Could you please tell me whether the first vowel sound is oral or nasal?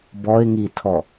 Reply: oral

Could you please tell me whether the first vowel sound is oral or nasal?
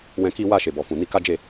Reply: nasal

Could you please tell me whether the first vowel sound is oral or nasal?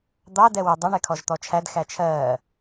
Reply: oral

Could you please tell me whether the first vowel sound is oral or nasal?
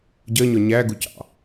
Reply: oral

